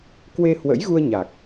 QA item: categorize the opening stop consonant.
plain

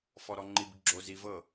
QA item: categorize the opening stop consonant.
click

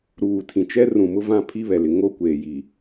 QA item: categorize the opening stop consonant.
aspirated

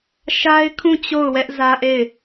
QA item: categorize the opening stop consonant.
aspirated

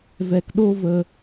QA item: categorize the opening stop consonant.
plain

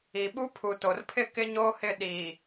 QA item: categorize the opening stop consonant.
implosive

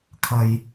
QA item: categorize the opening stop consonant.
aspirated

